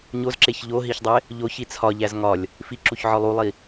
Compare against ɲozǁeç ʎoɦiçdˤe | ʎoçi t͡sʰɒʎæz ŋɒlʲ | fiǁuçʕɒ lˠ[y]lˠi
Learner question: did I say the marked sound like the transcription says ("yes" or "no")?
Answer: no